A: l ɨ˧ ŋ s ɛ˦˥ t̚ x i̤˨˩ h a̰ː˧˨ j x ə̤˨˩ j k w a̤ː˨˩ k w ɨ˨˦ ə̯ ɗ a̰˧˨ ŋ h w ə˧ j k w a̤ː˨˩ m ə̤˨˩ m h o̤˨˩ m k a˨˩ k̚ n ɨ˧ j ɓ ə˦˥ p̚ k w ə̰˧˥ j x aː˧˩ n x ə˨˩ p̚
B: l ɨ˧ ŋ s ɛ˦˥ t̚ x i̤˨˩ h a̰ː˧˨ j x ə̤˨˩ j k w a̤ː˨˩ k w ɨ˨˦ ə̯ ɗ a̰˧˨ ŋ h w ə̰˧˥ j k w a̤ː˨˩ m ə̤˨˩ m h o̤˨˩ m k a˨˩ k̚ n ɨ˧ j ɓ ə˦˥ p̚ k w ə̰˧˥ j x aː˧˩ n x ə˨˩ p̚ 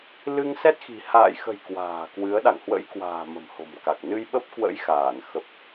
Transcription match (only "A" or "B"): B